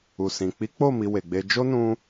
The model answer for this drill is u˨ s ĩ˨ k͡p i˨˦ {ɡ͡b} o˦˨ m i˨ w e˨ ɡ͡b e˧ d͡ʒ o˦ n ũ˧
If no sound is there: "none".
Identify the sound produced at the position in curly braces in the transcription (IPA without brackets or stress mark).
k͡p